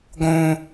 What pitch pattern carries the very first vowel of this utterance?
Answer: high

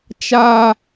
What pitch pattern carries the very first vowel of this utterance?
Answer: high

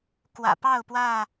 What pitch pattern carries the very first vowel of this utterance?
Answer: low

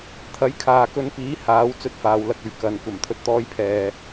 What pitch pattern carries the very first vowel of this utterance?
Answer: rising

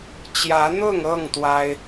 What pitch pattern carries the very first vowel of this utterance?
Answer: rising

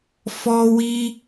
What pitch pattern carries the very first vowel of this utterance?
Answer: high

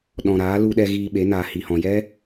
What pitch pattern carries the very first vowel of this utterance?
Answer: low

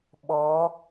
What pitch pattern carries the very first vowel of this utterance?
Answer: rising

